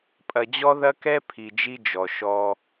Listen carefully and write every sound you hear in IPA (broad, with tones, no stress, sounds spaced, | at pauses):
pʼ ɐ˨ d͡ʑ ɔ˦ ð ɐ˦ k ɛ˦ pʰ i˨ d͡ʒ i˦ d͡ʒ ɔ˨ ʃ ɔ˦